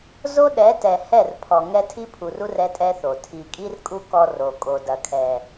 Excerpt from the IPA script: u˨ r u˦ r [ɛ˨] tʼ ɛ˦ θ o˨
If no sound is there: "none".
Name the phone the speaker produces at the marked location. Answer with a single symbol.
ɛ˦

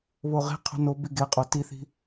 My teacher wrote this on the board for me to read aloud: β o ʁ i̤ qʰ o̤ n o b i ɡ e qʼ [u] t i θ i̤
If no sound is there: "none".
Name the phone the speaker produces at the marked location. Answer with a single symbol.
o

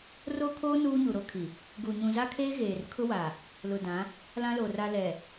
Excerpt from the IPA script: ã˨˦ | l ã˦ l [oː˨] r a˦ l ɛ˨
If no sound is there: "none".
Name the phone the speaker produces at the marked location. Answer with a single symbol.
o˨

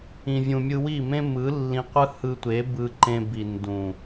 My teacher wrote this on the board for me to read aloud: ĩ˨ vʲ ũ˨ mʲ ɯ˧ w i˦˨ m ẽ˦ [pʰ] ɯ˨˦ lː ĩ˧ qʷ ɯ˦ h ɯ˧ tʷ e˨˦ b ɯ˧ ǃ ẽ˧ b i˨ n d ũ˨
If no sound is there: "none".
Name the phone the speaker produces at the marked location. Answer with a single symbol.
m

